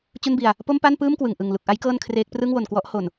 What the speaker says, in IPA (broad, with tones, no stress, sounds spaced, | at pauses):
t͡ɕ u˥˩ n b i˧ a̯ | p o˥˩ m p a˥˩ n p ɯː˥˩ m k w ɯ˨˩ ŋ ʔ ɯ˨˩ ŋ l u˨˩ k̚ ʔ a˦˥ j k ɤː˥˩ n kʰ r eː˦˥ k̚ p r ɯ˥˩ ŋ w o˨˩ n k w ɔ˦˥ ʔ h o˨˩ n